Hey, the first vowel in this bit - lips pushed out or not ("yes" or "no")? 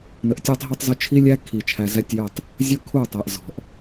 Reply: no